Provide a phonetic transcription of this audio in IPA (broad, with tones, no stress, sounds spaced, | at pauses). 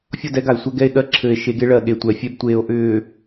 fʲ ɔ˦˨ d ɛ˦ ɡ a˨ e̯ sʷ ɛ˦ ɡ ɛ˦ e̯ ɠ ɜ˦ ǁʰ ɘː˨ e̯ ʃ e˨˦ ɡ e˦ ɭ ɜ˨ ɠ e˨ tʷ ɛ˨ fʲ ɛ˦ b tʷ eː˨ o̯ ʔ ʏː˨